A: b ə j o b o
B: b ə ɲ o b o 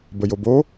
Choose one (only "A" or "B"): A